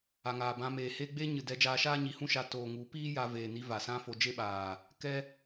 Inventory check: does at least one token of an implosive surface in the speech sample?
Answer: yes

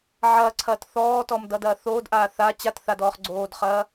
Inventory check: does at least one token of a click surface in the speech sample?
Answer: yes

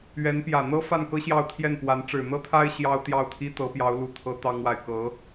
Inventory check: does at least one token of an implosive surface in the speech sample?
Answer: no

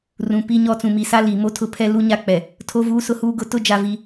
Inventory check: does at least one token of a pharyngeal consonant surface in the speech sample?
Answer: no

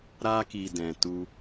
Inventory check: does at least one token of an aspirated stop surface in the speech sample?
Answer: no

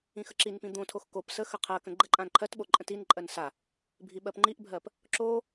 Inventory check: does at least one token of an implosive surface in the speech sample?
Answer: yes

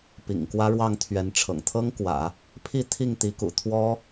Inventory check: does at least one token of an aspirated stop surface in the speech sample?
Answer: yes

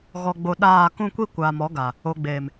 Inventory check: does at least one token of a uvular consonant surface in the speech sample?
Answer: no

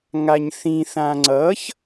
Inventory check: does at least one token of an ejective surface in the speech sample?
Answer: no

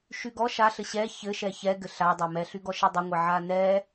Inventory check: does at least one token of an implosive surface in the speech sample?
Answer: no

